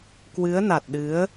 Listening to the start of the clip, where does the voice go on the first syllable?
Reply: rising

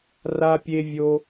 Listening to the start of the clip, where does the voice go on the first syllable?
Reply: high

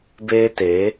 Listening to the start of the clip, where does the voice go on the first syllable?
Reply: high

